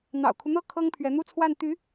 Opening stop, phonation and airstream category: aspirated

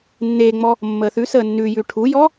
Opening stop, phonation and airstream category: aspirated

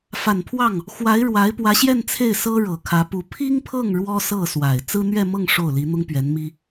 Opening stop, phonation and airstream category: aspirated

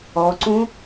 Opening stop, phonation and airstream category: click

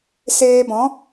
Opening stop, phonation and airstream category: plain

